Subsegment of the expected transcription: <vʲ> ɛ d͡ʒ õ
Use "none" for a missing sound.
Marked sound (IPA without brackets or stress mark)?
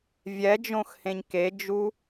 vʲ